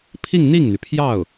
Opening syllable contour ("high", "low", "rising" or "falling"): falling